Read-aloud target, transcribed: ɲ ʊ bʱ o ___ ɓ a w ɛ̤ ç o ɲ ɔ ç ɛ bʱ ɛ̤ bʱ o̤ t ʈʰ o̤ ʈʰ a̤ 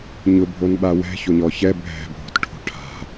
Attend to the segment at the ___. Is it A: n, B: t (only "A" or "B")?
A